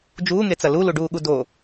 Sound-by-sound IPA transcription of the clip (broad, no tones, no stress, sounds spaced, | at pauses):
d͡ʒ uː ŋ e t͡s ɐ l u l u ɖ uː ɠ u d o